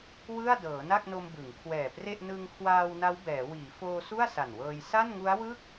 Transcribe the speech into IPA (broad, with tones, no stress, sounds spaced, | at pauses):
w ɯ˥˩ a̯ d ɤː˩˦ n a˥˩ k̚ n o˧ m b ɯ˩˦ ŋ kʰ w ɛː˨˩ p r e˥˩ ʔ n ɯ˧ ŋ kʰ w aː˧ w n a˦˥ w b ɛː˩˦ w iː˩˦ f oː˧ s u˥˩ a̯ s a˨˩ n w ɤː˧ j s a˥˩ n ŋ u˦˥ a̯ w ɯ˥˩ k̚